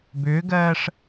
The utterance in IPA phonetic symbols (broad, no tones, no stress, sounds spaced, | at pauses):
b ʏː ɡ ɜː ʂ